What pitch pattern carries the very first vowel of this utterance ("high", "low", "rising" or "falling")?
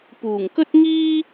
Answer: low